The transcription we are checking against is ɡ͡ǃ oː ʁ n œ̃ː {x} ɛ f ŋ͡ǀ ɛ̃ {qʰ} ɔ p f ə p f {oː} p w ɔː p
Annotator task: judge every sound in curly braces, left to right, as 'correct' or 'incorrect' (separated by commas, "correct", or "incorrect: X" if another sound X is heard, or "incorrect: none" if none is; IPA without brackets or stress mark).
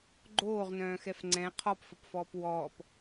correct, correct, incorrect: ɔː